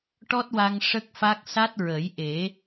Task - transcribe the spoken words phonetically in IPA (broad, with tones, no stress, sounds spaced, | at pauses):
ʈ ɔ˦˥ t̚ w a˧ ŋ ʂ ə˦˥ k̚ f a˦˥ k̚ s a˦˥ t̚ ɹ ə˨˩˦ j ʔ e˨˩˦